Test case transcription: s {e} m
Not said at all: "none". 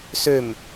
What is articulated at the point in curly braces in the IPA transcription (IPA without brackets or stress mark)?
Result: ø